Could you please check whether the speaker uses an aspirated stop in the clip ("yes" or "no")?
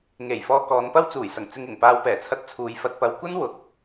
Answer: yes